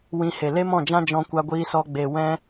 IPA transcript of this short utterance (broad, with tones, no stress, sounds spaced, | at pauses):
w ĩ˧ h e˨ l e˦ m ɔ̃˦˨ d͡ʒ ã˦ d͡ʒ ɔ̃˧ kʷ a˧ ɡʷ iː˧ s ɔ˧ ɡ͡b e˨ w ɛ̃˧